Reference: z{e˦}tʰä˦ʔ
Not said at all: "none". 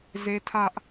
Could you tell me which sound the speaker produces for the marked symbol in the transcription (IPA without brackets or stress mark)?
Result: e˦